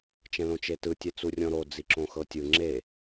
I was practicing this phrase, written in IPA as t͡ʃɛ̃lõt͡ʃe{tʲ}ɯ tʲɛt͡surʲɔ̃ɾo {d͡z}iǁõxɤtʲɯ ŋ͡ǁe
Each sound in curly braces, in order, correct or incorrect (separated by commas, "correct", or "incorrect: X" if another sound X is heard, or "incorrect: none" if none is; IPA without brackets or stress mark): incorrect: t, correct